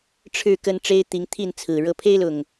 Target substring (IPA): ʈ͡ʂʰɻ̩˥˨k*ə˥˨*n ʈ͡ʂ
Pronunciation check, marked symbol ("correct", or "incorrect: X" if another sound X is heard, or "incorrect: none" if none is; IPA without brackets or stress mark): incorrect: ə˦